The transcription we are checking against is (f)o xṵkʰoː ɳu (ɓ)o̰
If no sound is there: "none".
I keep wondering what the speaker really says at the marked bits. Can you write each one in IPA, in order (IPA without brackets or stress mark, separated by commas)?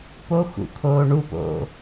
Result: p, p